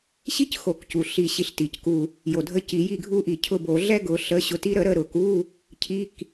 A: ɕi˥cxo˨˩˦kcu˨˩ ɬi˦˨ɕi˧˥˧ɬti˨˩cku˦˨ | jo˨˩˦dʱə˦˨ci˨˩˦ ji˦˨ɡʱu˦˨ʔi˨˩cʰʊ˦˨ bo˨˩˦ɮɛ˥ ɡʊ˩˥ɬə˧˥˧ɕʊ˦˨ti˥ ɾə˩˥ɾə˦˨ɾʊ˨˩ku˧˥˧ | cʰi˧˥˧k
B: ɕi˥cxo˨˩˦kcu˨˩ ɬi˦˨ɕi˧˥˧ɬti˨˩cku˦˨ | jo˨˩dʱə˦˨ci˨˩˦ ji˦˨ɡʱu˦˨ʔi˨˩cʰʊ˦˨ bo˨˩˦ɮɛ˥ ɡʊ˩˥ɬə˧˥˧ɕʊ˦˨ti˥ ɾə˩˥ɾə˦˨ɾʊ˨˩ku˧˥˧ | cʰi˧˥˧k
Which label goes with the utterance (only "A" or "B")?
B